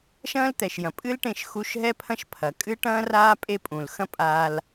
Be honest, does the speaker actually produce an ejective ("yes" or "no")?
yes